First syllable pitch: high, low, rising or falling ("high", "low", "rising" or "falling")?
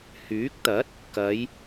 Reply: rising